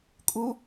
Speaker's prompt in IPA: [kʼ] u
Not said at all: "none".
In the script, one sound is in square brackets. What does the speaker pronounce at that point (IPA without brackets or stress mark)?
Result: kʼ